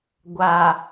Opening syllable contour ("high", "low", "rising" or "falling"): low